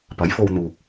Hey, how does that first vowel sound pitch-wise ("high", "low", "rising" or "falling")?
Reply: rising